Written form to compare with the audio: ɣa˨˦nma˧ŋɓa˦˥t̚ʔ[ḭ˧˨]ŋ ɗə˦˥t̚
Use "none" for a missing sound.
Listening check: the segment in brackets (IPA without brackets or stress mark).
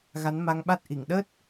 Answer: i˧˩